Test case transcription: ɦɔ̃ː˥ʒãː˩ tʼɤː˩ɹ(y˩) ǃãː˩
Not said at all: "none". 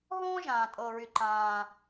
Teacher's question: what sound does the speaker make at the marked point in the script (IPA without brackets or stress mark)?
y˩